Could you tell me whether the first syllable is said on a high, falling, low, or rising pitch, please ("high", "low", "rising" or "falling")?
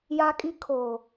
high